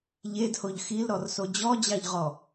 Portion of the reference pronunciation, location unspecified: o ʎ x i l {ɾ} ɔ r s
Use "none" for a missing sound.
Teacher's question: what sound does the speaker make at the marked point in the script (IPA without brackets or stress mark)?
ɾ